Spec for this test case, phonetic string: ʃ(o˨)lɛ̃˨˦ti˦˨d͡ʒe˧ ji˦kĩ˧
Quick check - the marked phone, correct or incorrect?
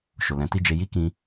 correct